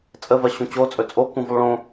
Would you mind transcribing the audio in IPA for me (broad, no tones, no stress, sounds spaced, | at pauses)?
t͡sʼ ə v ɜ ɕ ũ t͡ɕ o t͡sʼ ɵ t͡sʼ o k ũ v u lˠ ɭ õ